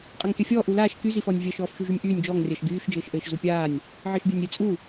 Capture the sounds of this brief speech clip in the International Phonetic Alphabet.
qʼ a ŋ kʲ a fʲ ɔː ʔ u l aː ʃ k y z i f ɔ nʲ vʲ ɜ ʃ ɔː f ʃ y ʒ y nʲ ʔ yː nʲ d͡ʒ ɔː ŋ rʲ ɜ ʃ ɡ yː ʃ d͡ʒ ɘː ʃ ʔ ɘː ʃ z u pʲ aː nʲ | ʕ ɘː ʃ bʲ a nʲ ɾʲ ɘ t͡sʼ u

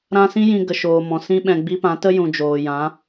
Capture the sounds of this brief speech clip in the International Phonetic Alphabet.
ɾ ã˦ s ĩ˦ j ĩ˧ ɡ ə˨ ʃ oː˨ m ɔ̃˨ s ĩ˦ ɓ ɛ̃˧ ɡ͡b i˦ p ã˨˦ t ə˦ j ũ˨ d͡ʒ oː˨ j ã˨˦

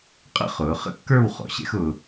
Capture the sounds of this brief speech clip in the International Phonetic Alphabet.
qʼ ə̰˥ χ ʊː˩˧ χ ə̰˥ kː ə˞˥˧ w χ ɔ̰˩˧ ɕ ɛ̰˥ x ʊː˧

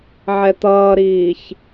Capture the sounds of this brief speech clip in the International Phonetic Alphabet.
ʕ ɛ t̪ ʌː ɾ iː ç

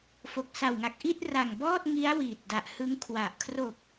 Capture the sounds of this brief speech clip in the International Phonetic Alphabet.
f o˨˩ k̚ s a˨˩ w ŋ a˨˩ k̚ ʔ i˥˩ t̚ r a˨˩ ŋ b ɔː˥˩ t̚ ŋ i˦˥ a̯ w iː˨˩ t̚ d a˨˩ ʔ h ɯ˦˥ ŋ kʰ w a˨˩ ʔ kʰ r o˨˩ k̚

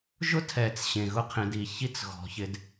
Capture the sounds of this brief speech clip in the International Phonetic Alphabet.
ʒ ʊ˦ tʰ ɛ˨ t͡s ɕ ẽ˨ ɣ ʊ˦ qʰ ẽ˧ d i˨ ç i˧ t͡s ɣ ɔ̤˨ ç ɪ˧ d

